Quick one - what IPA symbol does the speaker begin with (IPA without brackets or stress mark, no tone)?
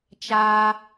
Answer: t͡ʃ